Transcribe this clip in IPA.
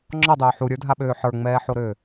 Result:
ŋ͡ǁɔdˤœː ħuɾʲə˞dʱaɓøː ħə˞ŋ͡mɛːħoɾøː

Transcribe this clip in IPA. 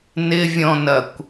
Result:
nɪvʲɔ̃nɐkʷ

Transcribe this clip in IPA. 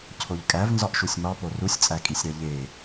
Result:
cʰoʎkʼæv nzɒʔʃusʲmɒpo rusʲt͡sʼækʼisʲɾæ ʎe

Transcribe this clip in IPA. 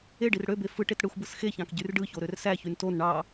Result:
eɖir ɽøbe fɯʈet ɽɯxʷbɯs xeçɑ̃k ɟyrɖɯço ɾørsæçyn ton ɳɑ

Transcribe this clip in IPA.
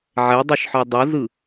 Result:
ʕɛdˤɯʃħɔ dˤɤzɯ

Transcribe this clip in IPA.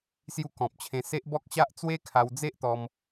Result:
sju˧kɔ̃˨p̚ t͡ɕʰẽ˧se˦ʔ bɔ˦k̚ɕa˦ʔ t͡swe˦kʰa˧wd͡ze˦ʔt̪ɔ˧m

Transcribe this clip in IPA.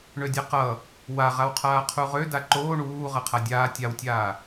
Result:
ɳødʲaqʌ | waʁawqʰaː qʰuʁø daǃoː ɳuː ʁʌqʰadʲaː tʲawtʲaː

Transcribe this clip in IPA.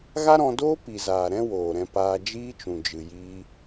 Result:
ɣa˦ɾɔ̃˧doː˦ pi˨zaː˨ ɾɛ̃˦woː˨ɾɛ̃˧ paː˧d͡ʒiː˦t͡ʃũ˨ d͡ʒɨ˨jiː˧

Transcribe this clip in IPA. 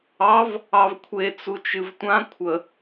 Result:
ɑv | ɑvkʷʰe t͡sut͡ʃɨvtʷã kʷʰə

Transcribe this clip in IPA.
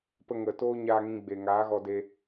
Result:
pə˧ŋə˨ toː˦ɲaː˧ŋĩ˧ ɡ͡be˨ŋaː˨˦ ɣɔ˧de˧

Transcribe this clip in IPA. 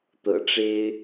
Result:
t̪ɤ̰˨˩ʈ͡ʂe˥ɪ̯

